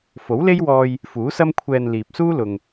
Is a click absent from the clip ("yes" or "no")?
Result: yes